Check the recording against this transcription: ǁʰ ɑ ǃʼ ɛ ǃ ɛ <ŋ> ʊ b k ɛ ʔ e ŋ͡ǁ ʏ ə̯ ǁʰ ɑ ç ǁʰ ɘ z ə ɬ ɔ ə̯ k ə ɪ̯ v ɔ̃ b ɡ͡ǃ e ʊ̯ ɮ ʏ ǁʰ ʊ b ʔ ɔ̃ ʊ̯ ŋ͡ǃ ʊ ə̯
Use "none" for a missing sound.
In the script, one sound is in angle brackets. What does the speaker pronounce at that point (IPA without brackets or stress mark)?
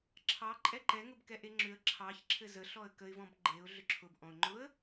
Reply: ŋ